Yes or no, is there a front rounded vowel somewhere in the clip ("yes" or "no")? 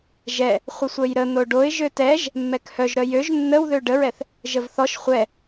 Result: yes